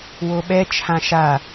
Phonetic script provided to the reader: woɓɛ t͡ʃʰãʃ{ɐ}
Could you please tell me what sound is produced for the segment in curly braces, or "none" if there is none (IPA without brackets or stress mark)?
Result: a